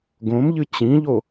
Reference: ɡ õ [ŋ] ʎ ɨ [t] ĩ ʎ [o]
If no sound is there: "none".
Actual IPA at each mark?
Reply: m, t͡ɕ, o

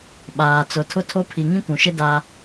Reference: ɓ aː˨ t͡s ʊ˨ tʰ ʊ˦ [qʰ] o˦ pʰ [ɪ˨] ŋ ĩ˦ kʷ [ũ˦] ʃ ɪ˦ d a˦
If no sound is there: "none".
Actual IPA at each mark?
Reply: tʰ, i˨, ũ˨

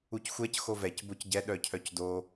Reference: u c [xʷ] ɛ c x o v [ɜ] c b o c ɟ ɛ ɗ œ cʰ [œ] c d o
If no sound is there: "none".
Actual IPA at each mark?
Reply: xʷ, ɛ, œ

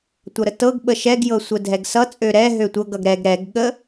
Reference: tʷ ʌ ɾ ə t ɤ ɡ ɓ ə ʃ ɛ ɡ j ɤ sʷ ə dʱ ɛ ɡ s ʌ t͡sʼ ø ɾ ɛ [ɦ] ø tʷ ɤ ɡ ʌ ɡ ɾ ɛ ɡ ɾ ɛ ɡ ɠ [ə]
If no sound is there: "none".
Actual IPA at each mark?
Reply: ɦ, ə

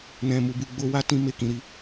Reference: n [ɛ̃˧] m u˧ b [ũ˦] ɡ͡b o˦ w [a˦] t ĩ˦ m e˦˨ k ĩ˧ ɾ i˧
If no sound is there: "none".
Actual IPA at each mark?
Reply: ɛ̃˦, u˦, a˦

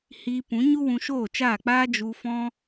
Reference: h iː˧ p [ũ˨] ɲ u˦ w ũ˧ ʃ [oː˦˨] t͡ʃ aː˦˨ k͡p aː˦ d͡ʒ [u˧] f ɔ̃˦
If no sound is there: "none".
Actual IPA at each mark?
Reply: ũ˨˦, oː˦˨, u˧

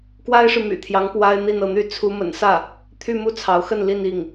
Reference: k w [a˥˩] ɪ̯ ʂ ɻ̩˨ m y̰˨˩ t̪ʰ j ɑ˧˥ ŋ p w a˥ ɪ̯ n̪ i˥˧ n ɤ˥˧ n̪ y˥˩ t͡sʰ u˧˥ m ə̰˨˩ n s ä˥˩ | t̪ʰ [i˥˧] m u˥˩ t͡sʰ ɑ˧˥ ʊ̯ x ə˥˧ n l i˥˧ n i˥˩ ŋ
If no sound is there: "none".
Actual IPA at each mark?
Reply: a˥, y˥˧

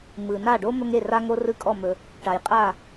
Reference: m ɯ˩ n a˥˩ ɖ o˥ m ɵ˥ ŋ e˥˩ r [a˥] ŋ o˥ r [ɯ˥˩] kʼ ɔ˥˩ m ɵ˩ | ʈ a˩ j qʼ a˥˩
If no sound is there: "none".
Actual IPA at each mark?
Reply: a˥, ɯ˥

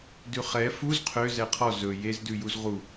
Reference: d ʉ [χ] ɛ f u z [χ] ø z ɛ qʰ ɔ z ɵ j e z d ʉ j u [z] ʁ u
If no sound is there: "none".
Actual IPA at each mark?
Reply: χ, qʰ, z

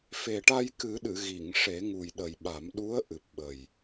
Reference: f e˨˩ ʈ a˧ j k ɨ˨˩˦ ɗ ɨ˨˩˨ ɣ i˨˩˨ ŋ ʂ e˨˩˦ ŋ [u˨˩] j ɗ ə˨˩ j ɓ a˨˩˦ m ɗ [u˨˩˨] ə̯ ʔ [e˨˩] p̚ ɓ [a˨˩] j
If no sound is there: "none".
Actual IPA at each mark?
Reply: u˨˩, u˧˥, ɨ˨˩, ə˨˩

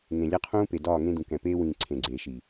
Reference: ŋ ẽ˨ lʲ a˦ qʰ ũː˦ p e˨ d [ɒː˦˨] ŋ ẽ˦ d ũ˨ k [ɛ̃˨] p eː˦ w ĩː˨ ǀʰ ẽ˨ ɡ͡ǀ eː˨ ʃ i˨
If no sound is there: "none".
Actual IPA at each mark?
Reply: ɒː˦˨, ɛ̃˨

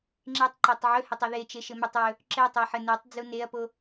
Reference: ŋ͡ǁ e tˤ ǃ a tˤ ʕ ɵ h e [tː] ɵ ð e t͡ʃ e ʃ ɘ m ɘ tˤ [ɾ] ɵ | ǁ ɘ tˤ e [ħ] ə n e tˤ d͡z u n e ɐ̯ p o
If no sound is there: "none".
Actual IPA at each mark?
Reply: tˤ, ɹ, ħ

